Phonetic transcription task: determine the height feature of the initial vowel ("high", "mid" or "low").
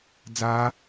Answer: low